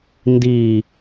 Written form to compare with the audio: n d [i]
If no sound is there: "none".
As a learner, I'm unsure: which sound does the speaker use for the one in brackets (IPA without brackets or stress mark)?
i